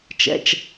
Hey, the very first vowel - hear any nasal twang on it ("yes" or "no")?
no